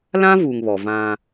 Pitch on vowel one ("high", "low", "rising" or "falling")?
high